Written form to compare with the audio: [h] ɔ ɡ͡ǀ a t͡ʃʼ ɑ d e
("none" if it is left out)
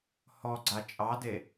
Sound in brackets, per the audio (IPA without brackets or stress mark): h